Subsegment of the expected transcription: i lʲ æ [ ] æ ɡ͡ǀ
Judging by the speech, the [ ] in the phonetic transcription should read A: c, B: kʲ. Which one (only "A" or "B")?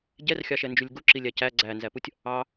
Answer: A